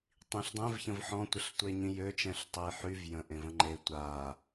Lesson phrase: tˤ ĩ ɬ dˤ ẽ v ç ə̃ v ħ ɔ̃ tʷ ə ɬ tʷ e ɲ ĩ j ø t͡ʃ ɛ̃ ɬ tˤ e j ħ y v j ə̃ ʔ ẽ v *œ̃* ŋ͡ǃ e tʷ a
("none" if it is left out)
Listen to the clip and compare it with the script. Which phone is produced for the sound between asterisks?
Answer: ə̃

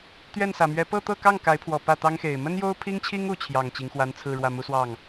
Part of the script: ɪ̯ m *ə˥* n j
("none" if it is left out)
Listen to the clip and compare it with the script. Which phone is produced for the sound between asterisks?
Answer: ə˥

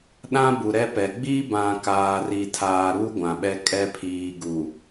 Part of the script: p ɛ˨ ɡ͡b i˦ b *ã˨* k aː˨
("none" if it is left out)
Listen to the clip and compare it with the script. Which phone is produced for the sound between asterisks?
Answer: ã˨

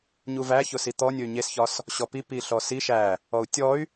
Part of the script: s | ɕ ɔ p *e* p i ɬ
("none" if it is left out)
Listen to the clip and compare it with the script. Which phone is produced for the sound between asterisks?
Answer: i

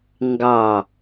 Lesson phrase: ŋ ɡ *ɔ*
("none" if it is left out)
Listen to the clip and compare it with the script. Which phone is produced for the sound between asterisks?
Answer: ɑ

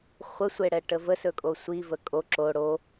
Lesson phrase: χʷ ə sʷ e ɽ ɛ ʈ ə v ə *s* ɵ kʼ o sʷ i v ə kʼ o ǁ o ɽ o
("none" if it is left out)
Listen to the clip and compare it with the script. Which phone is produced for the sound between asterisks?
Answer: s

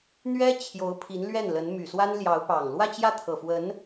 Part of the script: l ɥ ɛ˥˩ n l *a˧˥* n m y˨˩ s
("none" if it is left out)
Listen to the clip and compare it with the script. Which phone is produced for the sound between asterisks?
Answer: ə˧˥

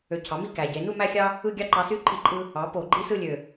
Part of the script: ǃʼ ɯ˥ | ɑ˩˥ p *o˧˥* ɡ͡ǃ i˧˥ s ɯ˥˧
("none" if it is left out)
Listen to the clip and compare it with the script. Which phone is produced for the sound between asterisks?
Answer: o˧˩˧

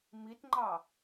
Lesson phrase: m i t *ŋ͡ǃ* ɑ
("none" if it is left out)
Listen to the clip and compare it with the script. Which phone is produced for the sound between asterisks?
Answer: ŋ͡ǃ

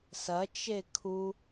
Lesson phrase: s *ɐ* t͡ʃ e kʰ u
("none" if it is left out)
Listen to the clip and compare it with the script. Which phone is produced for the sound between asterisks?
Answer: ɐ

